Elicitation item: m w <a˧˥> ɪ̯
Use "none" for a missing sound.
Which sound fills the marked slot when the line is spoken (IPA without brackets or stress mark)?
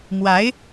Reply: a˧˥